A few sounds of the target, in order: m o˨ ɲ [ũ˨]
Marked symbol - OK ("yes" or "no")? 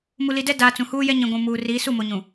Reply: yes